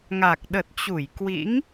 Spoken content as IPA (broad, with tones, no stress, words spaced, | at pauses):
ŋa˨˩k̚ɗə˨˩t̚t͡ɕu˧˩j kwḭ˧˥ŋ